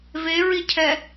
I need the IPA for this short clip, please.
v e ɹ i cʰ ɛ

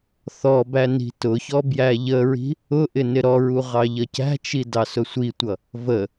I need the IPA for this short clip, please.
θ ɔ b æ n i̤ t ʊ ç ɔ b j æ ʎ ə ɹ i̤ | ʊ ʔ ɪ n ɪ ɾ ɔ ɹ u ʁ ɑ ʎ ʌ c æ̤ t͡ʃ i d ɑ s ʊ sʷ i tʷ ʌ | v ə

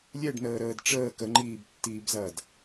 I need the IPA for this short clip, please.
lʲ ɛ ɖ n əː ɾ əː d ʈ͡ʂ əː k ə ŋ͡ǃ iː b tː iː b z ɐː d

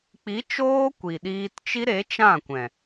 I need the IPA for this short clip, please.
k͡p i˨˦ t͡ʃ oː˦ kʷ i˨ ɗ iː˧ t t͡ʃ i˦ ɾ e˨˦ t͡ʃ ã˦˨ kʷ ɛ̃˨

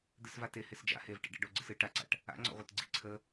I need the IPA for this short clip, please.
d̪ ɨ s v a t e h e s d͡ʒ a̰ h e v ʈ ḭ ɖ ḛ ɖ o ɡ͡ǀ ɨ s ɨ ʈ a ǀ a̰ ʈ | a̰ ŋ͡ǀ ɔ̰ ʁʷ e t ɡ͡ǀ ḭ ǀʰ ə

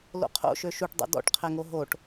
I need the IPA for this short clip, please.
l o̰ qʰ o̰ ʃ ø ʃ u ʈ dˤ o̰ d ɔ̰ ʈ qʰ ɛ ŋ o ɦ o ʈ

